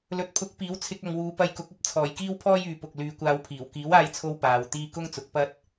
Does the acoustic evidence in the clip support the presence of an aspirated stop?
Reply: yes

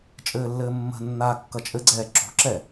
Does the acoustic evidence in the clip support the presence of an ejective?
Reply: yes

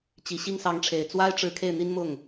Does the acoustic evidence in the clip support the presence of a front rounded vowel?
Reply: no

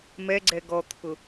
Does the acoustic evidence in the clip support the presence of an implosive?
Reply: no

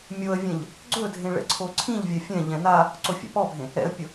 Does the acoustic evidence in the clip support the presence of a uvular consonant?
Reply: no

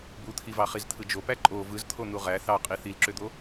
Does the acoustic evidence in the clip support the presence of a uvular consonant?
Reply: yes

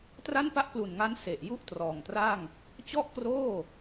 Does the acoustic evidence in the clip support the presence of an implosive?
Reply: no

